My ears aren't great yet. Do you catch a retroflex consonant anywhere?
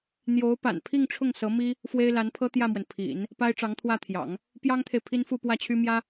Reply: yes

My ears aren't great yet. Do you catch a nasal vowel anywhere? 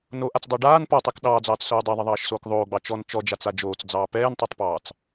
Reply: no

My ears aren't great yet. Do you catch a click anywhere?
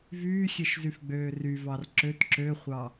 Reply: yes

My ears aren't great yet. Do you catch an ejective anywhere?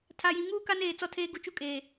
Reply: yes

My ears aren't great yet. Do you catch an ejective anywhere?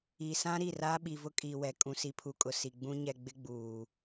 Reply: yes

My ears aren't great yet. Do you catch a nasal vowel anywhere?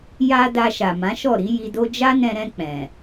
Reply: yes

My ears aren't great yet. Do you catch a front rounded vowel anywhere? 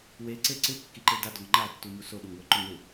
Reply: no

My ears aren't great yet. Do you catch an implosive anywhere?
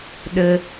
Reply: yes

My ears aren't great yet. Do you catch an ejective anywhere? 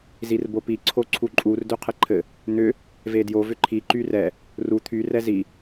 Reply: yes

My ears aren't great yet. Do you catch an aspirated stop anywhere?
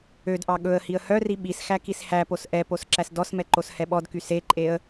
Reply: no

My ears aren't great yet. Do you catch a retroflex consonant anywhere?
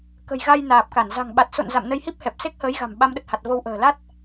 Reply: no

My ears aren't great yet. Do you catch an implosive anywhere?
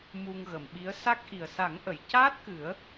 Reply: yes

